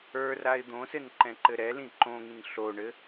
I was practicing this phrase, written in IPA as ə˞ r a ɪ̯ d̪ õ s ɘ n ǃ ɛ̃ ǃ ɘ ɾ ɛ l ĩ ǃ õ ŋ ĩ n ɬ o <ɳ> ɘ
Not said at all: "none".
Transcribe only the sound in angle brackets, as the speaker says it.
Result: ɳ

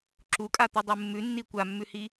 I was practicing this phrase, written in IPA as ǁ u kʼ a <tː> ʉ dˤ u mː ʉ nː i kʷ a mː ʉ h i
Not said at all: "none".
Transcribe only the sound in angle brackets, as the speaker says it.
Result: t̪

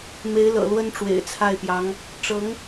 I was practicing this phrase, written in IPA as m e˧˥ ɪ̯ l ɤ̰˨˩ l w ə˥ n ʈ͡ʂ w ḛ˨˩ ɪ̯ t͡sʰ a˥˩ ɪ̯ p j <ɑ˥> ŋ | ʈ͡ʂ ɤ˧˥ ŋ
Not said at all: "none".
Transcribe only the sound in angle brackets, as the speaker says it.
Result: ɑ˧˥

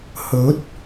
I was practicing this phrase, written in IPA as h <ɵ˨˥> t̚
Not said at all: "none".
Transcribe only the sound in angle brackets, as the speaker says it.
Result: ɵ˨˥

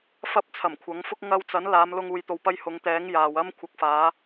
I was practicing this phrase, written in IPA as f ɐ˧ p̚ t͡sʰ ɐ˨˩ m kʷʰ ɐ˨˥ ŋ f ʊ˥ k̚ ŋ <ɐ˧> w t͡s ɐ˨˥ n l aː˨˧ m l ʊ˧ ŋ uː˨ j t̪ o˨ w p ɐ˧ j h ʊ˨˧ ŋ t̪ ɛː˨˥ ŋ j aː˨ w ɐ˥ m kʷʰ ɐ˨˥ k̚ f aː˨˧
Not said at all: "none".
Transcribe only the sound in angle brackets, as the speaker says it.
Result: ɐ˧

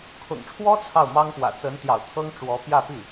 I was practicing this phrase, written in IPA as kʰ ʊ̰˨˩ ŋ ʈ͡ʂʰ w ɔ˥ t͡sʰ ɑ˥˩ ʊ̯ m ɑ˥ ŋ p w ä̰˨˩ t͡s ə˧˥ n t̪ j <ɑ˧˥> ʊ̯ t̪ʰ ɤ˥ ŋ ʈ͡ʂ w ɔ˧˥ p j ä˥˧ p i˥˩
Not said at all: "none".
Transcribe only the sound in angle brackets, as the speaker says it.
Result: ɑ̰˨˩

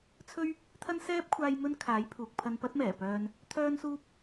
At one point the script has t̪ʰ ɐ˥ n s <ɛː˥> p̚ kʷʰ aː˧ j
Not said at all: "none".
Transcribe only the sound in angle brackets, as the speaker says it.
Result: ɛː˥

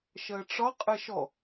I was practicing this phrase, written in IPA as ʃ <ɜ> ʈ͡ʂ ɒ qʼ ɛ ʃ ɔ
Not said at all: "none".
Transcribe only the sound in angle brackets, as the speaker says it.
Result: ɜ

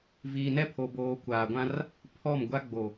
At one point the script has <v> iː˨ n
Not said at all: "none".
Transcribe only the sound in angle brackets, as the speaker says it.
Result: v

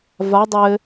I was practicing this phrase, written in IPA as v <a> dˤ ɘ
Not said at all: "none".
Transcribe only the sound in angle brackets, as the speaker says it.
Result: a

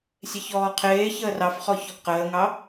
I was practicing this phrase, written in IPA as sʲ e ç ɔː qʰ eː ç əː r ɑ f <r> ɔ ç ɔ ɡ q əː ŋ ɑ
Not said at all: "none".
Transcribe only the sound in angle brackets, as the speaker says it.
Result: χ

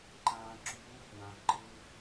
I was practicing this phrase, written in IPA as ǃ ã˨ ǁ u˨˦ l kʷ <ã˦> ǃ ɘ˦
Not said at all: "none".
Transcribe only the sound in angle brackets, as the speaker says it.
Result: ã˨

